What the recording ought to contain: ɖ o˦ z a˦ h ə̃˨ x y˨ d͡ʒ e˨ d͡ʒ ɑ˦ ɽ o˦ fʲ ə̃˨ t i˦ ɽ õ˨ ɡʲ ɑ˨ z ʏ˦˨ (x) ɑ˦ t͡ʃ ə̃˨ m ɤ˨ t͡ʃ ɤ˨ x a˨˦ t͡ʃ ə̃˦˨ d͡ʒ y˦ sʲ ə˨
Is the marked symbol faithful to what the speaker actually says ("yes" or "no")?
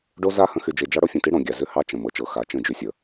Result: no